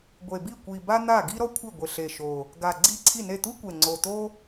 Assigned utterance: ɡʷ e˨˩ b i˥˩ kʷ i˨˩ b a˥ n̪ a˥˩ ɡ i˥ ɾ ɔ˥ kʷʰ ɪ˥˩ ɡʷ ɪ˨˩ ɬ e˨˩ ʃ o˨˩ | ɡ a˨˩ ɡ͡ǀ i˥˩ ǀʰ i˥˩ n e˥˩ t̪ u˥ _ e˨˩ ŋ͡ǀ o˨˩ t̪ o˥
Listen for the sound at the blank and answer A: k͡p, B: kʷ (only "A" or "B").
B